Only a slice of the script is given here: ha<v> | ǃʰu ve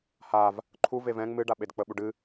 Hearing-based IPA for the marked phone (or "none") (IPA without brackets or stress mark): v